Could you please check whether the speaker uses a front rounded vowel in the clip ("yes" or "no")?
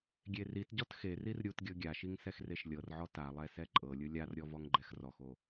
no